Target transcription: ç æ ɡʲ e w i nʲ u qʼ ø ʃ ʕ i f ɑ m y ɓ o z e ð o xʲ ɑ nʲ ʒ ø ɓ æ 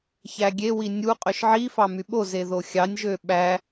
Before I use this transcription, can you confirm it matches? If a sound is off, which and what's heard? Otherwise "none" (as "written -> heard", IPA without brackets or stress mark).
none